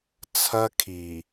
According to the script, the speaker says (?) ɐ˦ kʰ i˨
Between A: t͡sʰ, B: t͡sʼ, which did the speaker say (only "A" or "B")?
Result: A